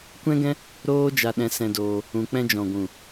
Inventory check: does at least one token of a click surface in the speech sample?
no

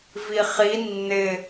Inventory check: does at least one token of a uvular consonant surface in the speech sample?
yes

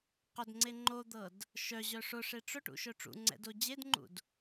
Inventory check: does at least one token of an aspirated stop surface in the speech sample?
no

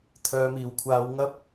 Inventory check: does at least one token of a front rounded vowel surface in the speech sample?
yes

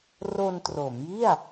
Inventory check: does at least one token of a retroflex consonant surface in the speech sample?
no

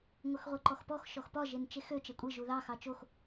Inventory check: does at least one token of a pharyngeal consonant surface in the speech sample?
no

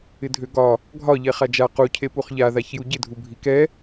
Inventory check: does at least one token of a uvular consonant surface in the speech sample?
yes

